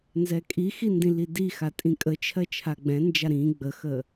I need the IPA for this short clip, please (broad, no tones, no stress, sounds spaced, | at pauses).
n z ɛ kʼ i x i n d ĩ l i d i x a tʼ ĩ kʼ ə t͡ʃʰ ɜ t͡ʃʰ a ɡ͡b ɛ̃ n d͡ʒ a ɾ ĩ ɡ͡b ə x ə